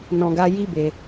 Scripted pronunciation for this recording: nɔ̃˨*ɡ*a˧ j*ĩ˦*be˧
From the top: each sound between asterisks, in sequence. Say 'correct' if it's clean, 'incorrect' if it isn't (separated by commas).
correct, incorrect